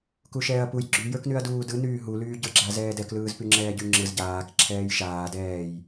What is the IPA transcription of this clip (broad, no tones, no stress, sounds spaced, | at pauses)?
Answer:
k u ʃ ɛː ɐ̯ p u j ɡ͡ǁ y j ə˞ k n y ɐ̯ d uː d ɯ n yː ɦ u l yː ɟ ə˞ ɡ͡ǁ a z ɛː d ɛ k l ɯː z p y ŋ͡ǁ ɛː ɟ y ŋ͡ǁ ɯ z ɟ aː k ǁʰ ɛː j ʃ aː d ɛː j